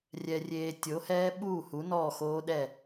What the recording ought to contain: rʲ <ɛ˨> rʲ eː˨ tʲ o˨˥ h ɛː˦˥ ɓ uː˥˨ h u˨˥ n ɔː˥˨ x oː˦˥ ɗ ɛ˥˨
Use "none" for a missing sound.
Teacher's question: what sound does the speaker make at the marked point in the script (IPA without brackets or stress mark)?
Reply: ɛ˨